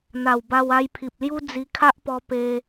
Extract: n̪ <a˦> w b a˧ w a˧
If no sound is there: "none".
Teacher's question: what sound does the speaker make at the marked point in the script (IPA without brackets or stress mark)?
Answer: a˨˩